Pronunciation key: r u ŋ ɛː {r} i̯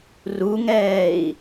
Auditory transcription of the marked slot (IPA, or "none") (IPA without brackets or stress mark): none